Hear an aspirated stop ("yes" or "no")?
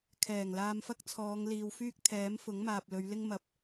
yes